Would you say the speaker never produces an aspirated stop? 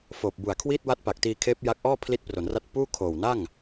no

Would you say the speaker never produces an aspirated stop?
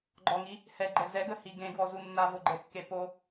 yes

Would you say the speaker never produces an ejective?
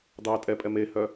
no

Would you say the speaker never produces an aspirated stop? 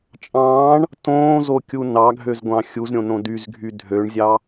yes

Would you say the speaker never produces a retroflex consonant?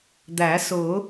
yes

